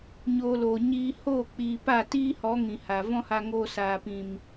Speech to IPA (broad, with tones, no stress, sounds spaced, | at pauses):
ɲ oː˧ l oː˨ ɲ iː˧ h oː˦˨ k͡p iː˧ p a˦˨ t iː˦ h ɔ˨˦ ŋ ĩ˨ h a˨ v ɔ̃˦ h a˧ ŋ oː˧ s aː˨ p ĩ˨ m